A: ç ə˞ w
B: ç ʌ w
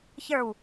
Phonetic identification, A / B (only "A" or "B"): A